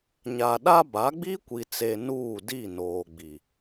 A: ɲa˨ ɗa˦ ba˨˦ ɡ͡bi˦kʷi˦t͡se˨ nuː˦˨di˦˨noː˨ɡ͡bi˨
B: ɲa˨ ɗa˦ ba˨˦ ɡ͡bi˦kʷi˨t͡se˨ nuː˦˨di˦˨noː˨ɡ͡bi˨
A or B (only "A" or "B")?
B